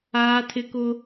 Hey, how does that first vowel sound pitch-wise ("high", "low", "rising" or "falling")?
high